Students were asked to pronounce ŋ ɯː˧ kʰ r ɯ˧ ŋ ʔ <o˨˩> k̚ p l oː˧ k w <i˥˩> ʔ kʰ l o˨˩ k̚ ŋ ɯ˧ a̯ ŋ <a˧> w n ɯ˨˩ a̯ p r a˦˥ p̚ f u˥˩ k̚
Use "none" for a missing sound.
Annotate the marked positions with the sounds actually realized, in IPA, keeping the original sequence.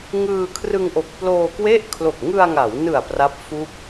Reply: o˨˩, e˥˩, a˩˦

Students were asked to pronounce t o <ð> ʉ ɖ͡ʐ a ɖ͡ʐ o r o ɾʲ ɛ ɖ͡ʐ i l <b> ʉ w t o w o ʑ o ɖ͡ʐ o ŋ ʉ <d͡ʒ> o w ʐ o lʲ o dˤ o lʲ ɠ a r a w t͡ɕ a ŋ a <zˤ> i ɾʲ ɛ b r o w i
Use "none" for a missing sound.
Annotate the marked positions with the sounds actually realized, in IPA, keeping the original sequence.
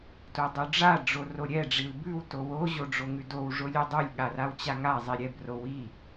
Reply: dˤ, b, d, zˤ

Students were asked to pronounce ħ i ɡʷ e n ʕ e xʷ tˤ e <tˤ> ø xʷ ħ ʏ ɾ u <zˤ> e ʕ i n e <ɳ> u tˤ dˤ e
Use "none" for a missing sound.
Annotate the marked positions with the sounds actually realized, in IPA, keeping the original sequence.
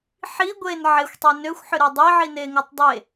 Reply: n, dˤ, ŋ

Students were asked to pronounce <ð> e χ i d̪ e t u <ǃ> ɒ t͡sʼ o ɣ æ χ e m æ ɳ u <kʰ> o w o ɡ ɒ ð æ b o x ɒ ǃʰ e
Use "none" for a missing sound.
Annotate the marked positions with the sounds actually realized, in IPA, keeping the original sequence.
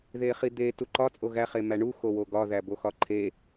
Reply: ð, ǃ, x

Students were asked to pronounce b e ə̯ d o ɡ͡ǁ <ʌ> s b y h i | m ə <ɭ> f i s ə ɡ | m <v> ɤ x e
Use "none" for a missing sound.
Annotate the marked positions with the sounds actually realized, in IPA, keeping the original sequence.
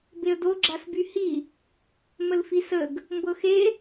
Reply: a, l, b

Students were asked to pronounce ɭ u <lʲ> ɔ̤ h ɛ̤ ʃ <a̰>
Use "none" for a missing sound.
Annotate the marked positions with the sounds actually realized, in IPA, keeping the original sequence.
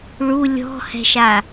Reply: lʲ, a

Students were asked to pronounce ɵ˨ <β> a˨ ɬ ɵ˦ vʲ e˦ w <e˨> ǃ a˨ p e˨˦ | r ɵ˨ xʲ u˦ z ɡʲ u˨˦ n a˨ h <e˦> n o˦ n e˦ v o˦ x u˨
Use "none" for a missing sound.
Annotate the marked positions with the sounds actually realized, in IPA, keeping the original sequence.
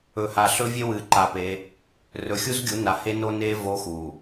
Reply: h, ɨ˨, e˦

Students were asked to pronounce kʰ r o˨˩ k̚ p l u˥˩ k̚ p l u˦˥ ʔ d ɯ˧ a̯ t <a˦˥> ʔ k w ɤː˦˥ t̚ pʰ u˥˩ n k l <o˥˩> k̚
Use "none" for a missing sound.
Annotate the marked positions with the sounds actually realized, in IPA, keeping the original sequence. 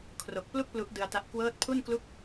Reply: a˦˥, u˥˩

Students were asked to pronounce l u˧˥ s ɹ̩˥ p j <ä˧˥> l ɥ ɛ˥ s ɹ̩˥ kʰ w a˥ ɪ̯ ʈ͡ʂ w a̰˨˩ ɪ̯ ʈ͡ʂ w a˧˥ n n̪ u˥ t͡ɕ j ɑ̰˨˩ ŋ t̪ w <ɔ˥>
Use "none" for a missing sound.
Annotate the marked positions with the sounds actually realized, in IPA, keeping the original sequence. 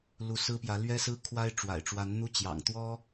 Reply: ä˧˥, ɔ˥

